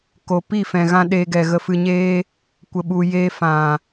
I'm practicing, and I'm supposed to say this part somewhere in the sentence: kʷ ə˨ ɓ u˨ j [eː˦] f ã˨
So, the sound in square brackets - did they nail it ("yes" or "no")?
no